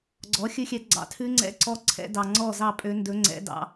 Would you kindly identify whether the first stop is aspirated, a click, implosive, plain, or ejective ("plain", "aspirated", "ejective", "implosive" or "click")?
click